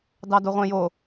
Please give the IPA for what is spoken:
d ɑ d o ʁʷ ẽ j o

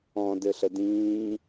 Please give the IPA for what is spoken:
ɔ̃ d ɘ ɬ ə d ĩː

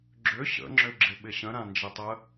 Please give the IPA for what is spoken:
ɡ͡ǁ ʏ ɕ ə̰ ŋ͡ǁ ʏ ɡ͡ǁ ɪ ɓ ɪ ɕ ə̃ ɾ ã n d͡ʒ ɪ tˤ ə

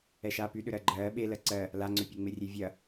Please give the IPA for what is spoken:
ɛ ʃ aː p y ɗ ʏ ɾ ɜ ɡ͡ǃ ɜː ɓ e l ɜ ǀ ɜ | l a ŋ͡ǀ ʏ pʲ e ŋ͡m e rʲ e vʲ ɐ

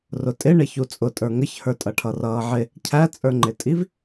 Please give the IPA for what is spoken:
r ʊ tʼ ɪ ɳ ɪ ç u t͡sʼ ʊ tʼ ə˞ ŋ ə ç h ə˞ tʼ ʌ ʈʰ ʌ r ʌː ʕ ɪ | cʰ æ t͡sʼ ə˞ ŋ͡ǃ ɪ tʼ i v

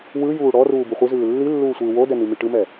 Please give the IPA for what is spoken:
w ɯ j uː ɽ ɔ r uː b u χʷ i z ɯː lː i lː uː sʷ ɯː w o d ɛ n i m i ʈ ɯ m ɛ

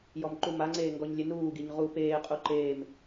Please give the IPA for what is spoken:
j ɔ m ǃ u m a ŋ͡ǀ eː ŋ ɡ ɔ ɲ lʲ e n uː ɡ i ɲ ʁ u p eː qʼ u ǃ eː m

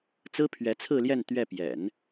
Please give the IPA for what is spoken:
t͡s ɹ̩˥ pʰ ɥ ɛ˧˥ t͡sʰ ɹ̩˥˧ l j ɛ˥˧ n t̪ ɥ ɛ˥˩ p j ɛ̰˨˩˦ n

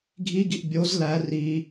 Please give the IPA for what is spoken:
ɡʱ i ɡ i ʔ bʲ o z l æ r i

